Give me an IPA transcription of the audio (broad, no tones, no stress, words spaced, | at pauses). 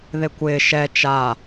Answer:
ðekʷɪː ʃɛ t͡ʃa